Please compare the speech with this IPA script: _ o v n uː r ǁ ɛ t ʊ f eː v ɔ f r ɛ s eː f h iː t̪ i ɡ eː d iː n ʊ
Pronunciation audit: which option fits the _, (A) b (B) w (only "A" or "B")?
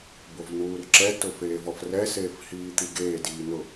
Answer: A